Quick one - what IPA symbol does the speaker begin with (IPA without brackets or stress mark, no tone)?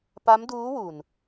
p